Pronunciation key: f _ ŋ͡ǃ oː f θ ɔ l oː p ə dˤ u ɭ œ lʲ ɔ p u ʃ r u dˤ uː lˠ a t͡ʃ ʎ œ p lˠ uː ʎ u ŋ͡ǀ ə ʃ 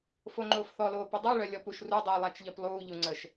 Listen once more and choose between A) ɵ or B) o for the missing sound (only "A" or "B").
B